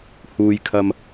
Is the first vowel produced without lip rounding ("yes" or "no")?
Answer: no